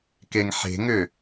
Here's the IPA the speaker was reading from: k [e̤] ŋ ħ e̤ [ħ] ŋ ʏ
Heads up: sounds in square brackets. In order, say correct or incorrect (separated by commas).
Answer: incorrect, incorrect